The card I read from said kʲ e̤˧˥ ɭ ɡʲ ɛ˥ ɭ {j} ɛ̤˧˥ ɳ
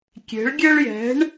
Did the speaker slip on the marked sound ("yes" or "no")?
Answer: no